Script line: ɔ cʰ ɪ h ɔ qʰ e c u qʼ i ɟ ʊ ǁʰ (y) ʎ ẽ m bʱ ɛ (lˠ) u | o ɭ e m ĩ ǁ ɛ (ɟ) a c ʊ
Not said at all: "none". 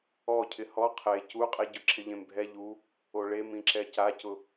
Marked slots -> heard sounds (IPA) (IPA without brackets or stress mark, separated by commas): ɪ, ʎ, c